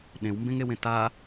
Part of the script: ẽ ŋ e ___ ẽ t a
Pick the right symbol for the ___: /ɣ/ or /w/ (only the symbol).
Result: w